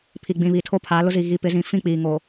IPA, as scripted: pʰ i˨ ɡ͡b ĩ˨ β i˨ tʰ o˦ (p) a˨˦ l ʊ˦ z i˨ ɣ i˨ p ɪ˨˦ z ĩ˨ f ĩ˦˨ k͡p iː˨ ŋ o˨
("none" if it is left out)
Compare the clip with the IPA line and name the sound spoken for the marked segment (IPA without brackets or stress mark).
pʰ